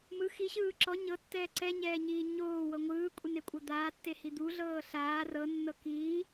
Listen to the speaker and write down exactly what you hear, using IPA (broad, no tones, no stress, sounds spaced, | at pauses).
m ɯ x i ɕ ɯː ǁ ɔ ɲ ɤ tː ɛː ǀ ɛ ɲ ɛː ɲ iː ɲ oː w ɤ ŋʷ ɯː kʷʼ e n e kʷʼ ɤ d̪ aː tː e h i d̪ u ɮ ɤː ɬ aː r ɤ nː ɤ k iː